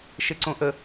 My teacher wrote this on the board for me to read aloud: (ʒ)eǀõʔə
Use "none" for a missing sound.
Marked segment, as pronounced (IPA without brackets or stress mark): ʃ